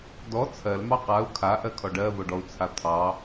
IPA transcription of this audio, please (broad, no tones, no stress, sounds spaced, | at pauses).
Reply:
d ɔ t͡sʰ ɜ l m ɑ q a u̯ kʰ a ʔ ɜ kʰ ɔ ɖ ɜ v o ɖ ɔ u̯ t͡sʰ a t̪ʰ ɑ